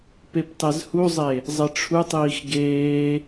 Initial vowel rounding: unrounded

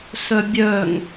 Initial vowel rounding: rounded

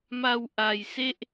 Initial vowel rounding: unrounded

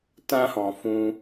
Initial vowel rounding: unrounded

